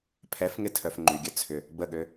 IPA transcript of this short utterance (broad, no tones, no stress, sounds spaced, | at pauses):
pʰ ɛ f ŋ ɪ tʰ œ f ŋ͡ǃ y ɡʲ œ t͡sʰ ʏ | b ə ɠ ø